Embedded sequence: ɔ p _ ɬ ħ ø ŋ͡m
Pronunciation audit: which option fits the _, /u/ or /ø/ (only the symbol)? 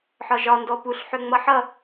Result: u